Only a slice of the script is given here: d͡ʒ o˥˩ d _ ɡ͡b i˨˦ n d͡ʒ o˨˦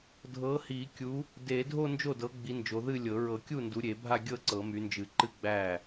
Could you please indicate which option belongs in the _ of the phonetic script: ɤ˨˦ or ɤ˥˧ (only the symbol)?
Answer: ɤ˨˦